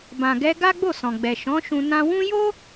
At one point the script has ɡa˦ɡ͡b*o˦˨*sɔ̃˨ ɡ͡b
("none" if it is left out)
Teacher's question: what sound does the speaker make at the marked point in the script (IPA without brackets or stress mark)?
o˦˨